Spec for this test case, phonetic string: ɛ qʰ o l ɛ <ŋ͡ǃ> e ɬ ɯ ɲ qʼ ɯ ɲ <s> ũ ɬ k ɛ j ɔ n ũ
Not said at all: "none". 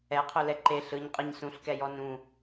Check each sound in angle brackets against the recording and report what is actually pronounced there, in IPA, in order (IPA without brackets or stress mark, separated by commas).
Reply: ǃ, s